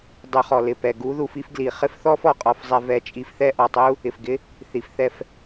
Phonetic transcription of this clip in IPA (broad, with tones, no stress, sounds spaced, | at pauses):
dˤ u˧ χ ɔ˩ l ɪ˧ p ɛ˩ ɡ u˥ ð u˧ f i˥ f ɡ l i˩ χ ɪ˥ f θ ɔ˥ f ɔ˩ qʼ ɔ˧ f zˤ ɛ˧ v ɛ˧ t͡ʃʼ i˧ f θ ɛ˥ ʔ ɔ˩ tˤ u˥ | ɪ˩ f ɡ ɪ˥ | θ i˩ f θ ɛ˧ f